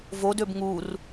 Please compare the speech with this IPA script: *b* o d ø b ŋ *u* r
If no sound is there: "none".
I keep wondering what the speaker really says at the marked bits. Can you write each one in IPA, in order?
v, u

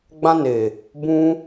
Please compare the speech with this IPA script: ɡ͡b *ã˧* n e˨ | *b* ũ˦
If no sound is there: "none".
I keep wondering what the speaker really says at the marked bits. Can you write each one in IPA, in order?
ã˧, b

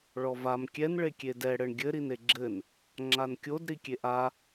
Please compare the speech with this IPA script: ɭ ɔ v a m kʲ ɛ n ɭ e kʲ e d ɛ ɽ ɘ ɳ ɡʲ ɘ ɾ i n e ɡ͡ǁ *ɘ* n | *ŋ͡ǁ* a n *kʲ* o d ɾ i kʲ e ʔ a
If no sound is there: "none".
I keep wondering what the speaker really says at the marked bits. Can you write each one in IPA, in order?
ɘ, ŋ͡ǁ, kʲ

